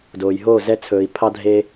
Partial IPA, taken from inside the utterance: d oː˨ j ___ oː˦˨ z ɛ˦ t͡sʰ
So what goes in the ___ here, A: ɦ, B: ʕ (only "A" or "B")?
A